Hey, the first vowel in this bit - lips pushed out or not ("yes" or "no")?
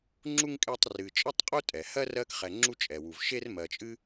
yes